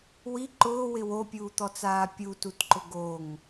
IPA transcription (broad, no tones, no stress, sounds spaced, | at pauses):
w i ǃ ʊː w ɪ w o pʲ uː t̪ ɔ t͡s aː pʲ u t u t ǃ ʊ ɡ o ŋ